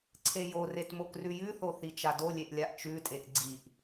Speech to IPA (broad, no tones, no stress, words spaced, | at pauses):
ǀʰejoret mokrʉjʉθo θit͡ʃadolʲeʔ lʲaʔt͡ʃʉtʼeʔ ɡ͡ǀiʔ